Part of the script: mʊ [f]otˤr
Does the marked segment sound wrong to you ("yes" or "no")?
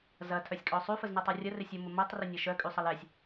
yes